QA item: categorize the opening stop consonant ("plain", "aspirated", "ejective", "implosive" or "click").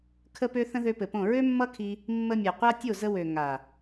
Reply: aspirated